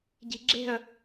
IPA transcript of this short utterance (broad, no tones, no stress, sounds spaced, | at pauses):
ɟ i̤ ɡ͡ǁ e̤ ə̯